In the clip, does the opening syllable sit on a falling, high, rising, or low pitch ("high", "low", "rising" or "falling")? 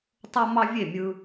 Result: high